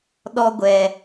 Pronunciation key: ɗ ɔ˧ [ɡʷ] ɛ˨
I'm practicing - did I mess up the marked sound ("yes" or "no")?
no